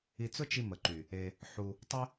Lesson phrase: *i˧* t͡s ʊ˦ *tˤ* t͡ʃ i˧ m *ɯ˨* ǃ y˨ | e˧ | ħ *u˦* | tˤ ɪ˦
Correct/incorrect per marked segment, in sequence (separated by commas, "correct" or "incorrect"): correct, incorrect, incorrect, incorrect